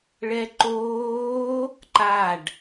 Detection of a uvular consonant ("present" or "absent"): absent